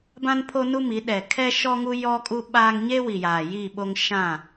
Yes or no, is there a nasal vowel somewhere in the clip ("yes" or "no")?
yes